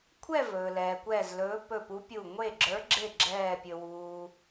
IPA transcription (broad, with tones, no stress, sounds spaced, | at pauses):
kʷʰ ɛ˥˧ v ɵː˩ l ɛː˩ kʷ ɛː˧˩ z l ɵː˨˦ p ɵ˧˩ p u˨˦ pʲ u˧˩ ŋʷ e˧˩ ɡ͡ǁ ə˞˨˦ ɡ͡ǁ e˧˩ ɡ͡ǁ ɛː˧˩ pʲ ɵ˩ w uː˩